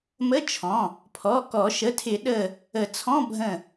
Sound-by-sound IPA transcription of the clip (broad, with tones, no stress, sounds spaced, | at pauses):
m ə˧˥˧ t͡ʃʰ ɔ̃˩˧˩ | pʰ ɔ˩˧˩ k ɔ˨˩˦ ʃ ə˩˧˩ tʰ ɪ˨˩˦ ɗ ə˧˩ | ə˨˩˦ t͡sʰ ɔ̃˧˥˧ bʱ ə̃˧˩